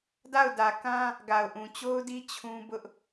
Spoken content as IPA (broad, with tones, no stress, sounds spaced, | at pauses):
d a˦˨ ʊ̯ d ä˨ k ã˦ | ɡ a˨ ʊ̯ ʔ ũ˨ t͡ɕ o˦ ʊ̯ d i˦ t͡ɕʰ ũ˦ b ʊ˦ ʔ